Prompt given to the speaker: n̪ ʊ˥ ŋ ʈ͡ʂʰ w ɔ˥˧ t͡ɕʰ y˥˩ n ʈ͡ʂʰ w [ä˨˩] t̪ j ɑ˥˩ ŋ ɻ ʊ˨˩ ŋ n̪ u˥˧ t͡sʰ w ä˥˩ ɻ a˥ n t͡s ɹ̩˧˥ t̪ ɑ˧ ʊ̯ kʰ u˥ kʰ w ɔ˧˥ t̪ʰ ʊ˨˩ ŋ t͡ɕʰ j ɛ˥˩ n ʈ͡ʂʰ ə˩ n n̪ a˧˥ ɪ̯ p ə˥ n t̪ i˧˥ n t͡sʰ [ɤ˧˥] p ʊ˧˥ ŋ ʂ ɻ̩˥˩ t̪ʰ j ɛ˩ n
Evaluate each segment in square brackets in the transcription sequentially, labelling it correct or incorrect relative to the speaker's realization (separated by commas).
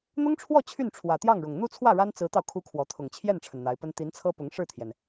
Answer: correct, incorrect